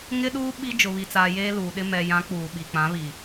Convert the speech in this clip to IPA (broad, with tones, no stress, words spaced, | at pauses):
ŋɪ˦ɗuː˦ ɓi˦ d͡ʒʊ˨βi˨t͡saː˨ jeː˦luː˨ɗɪ˦ mɛ˨jã˨˦ k͡puː˨ɓi˨ k͡pã˨˦βi˨